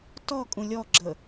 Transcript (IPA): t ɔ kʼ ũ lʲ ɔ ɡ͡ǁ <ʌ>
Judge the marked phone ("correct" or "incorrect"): incorrect